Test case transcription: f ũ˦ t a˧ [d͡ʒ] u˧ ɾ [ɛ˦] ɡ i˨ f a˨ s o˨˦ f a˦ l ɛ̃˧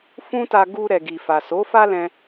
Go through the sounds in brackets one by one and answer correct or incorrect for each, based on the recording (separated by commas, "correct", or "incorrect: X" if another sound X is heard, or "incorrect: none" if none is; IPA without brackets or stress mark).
incorrect: ɡ, incorrect: ɛ˨